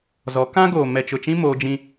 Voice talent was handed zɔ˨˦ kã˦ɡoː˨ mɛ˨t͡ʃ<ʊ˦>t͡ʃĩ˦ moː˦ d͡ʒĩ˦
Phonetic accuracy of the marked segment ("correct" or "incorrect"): incorrect